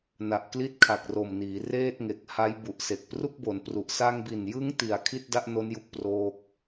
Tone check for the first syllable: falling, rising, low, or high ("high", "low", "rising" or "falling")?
low